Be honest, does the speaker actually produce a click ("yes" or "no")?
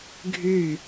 no